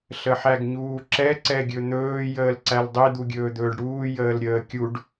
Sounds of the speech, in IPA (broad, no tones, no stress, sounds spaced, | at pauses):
ɬ ə ħ æ ɡ ɲ uː ǁ ɛ ǀ ɛ ɡʲ ɵ n̪ ɵː j əː l ǀ æ l dˤ i d̪ u ɡʲ ɵː d̪ ɵː ɖ ɽ uː j əː l ɾʲ əː kʲ u ɖ